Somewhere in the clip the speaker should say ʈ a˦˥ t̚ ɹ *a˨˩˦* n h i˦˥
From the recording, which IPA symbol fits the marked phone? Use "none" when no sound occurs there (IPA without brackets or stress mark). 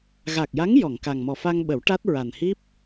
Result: a˨˩